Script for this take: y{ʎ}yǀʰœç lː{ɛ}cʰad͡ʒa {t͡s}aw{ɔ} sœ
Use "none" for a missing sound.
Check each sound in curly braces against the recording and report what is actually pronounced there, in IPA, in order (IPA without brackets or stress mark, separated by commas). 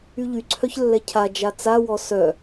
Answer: ʎ, ɛ, t͡s, ɔ